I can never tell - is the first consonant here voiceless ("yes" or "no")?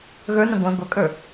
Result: no